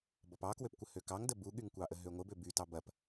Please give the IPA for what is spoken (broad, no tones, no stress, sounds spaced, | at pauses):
b ɔ p ɑ k w ø p kʷ ə h ø k ɑ ŋ d ə b u ɠ y ŋ kʷ ɑ ʔ ə ɦ ø ŋʷ ə b ø b y t ɑ b ɐ p